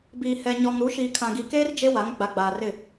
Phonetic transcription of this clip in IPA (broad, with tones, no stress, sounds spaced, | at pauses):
b iː˨ h ɛ˨ ɲ ɔ˨ ŋ ɾ u˨˦ ʃ iː˨ kʰ ã˨ ɡ i˨ k eː˦ r d͡ʒ e˦ w a˨˦ ŋ ɡ͡b a˨ ɡ͡b aː˨ r ɪ˦˨